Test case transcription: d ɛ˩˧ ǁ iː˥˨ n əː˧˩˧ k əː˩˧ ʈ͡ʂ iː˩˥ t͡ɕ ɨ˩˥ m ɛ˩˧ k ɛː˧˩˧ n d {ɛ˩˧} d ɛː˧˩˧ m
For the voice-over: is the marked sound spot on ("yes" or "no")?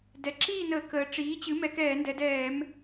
yes